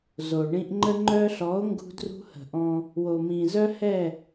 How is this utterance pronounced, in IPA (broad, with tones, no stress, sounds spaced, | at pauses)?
z o˨ ɳ ĩ˦ ʔ ŋ͡ǃ ə˧ ŋ͡ǃ œ˧ ɬ ɔ˨˦ o̯ ŋ ɡ ṳ˦ d r ṳ˦ h ə̤˨ ʔ ɔ̃˧ | w o˨ m ĩ˨ z œ˦ h ɛ˦˨